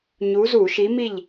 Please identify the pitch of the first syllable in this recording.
rising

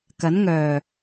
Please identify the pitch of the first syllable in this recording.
rising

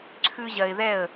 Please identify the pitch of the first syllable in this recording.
high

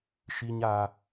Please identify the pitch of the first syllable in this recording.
high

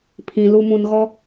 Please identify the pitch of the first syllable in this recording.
low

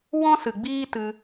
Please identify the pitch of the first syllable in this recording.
high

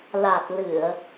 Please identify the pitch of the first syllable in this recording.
low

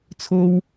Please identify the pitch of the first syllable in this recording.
high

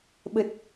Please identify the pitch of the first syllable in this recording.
low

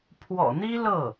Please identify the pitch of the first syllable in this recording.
low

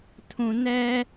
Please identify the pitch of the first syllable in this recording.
low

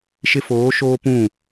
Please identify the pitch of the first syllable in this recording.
high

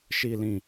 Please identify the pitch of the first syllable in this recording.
low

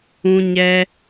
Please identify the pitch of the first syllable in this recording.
high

